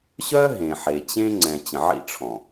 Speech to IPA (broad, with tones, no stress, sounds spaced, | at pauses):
ɕ œ˦ ɦ ẽ˨ ħ e˨ t͡ɕ ẽ˦ ŋ͡ǀ ɛ̃˨ t͡ɕ ə̃˨ ʕ ḭ˦ ʈ͡ʂʰ ɔ̃˨